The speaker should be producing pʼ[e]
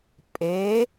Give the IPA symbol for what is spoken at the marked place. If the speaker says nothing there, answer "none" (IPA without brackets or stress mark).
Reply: e